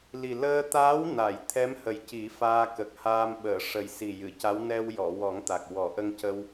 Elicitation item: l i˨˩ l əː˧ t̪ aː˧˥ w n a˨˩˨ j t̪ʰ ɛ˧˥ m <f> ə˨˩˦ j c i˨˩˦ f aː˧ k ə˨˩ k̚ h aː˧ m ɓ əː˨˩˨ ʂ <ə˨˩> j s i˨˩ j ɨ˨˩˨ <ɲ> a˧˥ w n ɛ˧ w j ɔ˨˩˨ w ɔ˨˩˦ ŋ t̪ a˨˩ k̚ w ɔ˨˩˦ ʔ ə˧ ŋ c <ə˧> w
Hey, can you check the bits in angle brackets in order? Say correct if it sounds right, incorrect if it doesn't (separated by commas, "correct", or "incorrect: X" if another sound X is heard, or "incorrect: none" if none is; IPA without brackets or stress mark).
incorrect: h, correct, incorrect: c, correct